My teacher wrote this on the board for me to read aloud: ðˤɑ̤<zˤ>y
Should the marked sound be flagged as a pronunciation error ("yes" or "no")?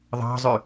no